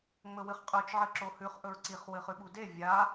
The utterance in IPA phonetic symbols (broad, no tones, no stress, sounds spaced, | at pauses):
ŋ͡m ɵ w ɨ χ qʼ ʉ t͡ʃ ʕ ɨ ǁ o h ʉ χ ʔ ɵ ɹ ǀ i χ w ɨ χ ʉ ɓ u d e vʲ a